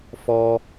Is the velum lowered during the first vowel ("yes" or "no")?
no